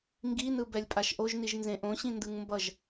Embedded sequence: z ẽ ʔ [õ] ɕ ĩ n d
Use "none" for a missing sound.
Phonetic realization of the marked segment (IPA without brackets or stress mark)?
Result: õ